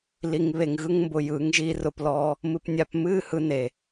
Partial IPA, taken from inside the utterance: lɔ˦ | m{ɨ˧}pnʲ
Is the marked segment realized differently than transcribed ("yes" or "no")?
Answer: no